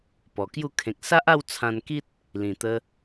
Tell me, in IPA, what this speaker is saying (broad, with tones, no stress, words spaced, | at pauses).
pɔ˨˩kju˥˧ kʰẽ˨k̚ sa˦ʔa˥˧w t͡sʰã˧nki˦t̚ | lĩ˨˩t̪ə˧